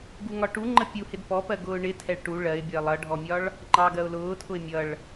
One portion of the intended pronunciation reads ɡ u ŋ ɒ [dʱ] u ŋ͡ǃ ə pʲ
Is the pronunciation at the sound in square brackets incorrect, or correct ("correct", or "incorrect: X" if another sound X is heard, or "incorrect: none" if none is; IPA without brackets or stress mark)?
incorrect: ʈ